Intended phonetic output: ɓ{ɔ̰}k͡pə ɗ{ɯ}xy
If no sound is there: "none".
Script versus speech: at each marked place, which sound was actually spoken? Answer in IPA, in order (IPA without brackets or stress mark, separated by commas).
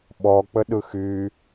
ɔ, ɯ